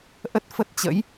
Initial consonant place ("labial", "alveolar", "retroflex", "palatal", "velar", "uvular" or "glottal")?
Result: glottal